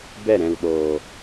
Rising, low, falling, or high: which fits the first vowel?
falling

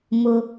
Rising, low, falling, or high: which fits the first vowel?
low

